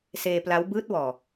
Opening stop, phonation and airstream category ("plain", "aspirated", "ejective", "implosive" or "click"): plain